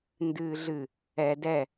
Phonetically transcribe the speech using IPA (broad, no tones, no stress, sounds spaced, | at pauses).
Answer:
n d ɨː ɮ ɨ | ɛ d ɛ